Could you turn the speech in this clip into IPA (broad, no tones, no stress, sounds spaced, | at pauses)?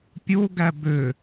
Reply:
pʲ o ɡ æ b ø